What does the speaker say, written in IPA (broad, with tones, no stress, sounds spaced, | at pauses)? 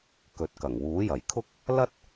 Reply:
k ɵ˨˥ t̚ k ɐ˨˩ ŋ w uː˨˥ j ɐ˨˩ j kʰ ʊ˥ k̚ | l ɐ˥ t̚